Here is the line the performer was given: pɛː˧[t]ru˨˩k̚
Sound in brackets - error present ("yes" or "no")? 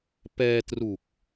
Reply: no